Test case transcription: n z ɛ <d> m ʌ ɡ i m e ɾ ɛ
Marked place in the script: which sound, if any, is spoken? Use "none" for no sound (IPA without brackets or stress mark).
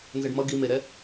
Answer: ɖ